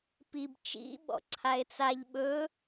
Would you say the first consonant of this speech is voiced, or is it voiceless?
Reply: voiceless